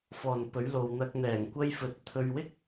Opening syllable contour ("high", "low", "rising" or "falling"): low